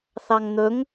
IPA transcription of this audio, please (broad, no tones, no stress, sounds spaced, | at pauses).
θ ɑ ŋ n̪ ɵ ŋ